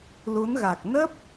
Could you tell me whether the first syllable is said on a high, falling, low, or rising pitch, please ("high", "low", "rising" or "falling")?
rising